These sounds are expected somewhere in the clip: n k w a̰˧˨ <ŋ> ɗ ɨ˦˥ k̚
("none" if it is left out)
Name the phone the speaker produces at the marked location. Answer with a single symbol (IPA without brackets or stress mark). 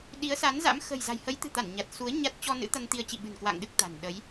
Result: ŋ